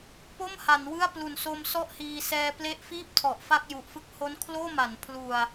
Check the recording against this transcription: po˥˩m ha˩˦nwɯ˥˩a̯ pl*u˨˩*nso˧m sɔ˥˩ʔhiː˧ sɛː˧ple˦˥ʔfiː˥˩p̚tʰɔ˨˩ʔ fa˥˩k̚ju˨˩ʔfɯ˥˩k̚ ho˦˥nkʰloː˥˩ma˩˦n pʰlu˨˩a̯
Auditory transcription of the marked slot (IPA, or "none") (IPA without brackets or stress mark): u˨˩